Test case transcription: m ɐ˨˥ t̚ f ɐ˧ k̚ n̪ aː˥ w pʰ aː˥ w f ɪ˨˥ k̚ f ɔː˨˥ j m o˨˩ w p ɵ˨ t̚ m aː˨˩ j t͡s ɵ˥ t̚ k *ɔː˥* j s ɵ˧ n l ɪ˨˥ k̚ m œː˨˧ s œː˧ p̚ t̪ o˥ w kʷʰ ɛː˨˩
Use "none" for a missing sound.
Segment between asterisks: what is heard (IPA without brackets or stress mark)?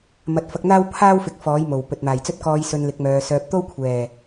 ɔː˧